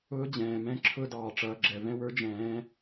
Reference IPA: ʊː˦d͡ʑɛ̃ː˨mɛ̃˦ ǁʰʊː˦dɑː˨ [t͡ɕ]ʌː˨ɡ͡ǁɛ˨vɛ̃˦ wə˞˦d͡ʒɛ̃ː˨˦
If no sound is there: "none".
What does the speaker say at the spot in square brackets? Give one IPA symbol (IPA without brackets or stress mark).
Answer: ʈ͡ʂ